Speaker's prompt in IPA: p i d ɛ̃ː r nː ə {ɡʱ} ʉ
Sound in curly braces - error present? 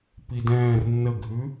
no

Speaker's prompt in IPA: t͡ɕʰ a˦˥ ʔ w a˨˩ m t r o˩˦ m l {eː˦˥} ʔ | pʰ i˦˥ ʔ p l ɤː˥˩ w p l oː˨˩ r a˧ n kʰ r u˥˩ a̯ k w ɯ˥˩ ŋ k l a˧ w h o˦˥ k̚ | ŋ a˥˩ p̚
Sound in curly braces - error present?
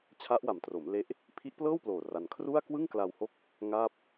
yes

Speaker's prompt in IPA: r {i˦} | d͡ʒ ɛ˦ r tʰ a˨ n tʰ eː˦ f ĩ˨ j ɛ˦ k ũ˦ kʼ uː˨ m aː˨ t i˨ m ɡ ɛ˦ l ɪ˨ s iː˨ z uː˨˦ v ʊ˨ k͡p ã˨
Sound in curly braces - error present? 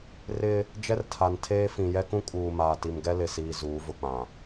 yes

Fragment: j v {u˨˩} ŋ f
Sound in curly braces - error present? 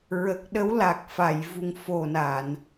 no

